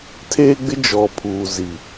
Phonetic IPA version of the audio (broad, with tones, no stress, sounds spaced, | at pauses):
tʰ eː˦ ɡ͡b ɪ˦ d͡ʒ ɔ˨ pʰ uː˨ z i˨